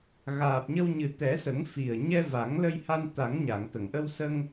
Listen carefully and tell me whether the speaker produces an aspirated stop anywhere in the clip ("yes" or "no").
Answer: no